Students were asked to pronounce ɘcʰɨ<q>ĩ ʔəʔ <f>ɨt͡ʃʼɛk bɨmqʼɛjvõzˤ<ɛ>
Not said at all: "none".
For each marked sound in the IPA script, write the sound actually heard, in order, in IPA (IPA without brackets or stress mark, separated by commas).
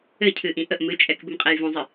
ʔ, m, ɨ